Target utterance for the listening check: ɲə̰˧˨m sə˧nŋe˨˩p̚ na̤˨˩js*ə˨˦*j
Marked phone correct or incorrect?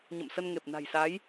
incorrect